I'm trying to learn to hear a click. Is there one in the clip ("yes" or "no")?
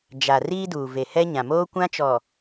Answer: no